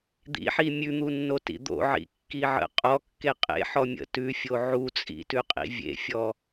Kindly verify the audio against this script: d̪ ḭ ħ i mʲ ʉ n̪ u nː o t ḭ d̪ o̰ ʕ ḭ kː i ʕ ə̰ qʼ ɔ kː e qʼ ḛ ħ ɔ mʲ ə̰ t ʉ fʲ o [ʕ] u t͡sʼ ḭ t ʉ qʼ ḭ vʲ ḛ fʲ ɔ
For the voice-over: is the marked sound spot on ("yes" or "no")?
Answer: yes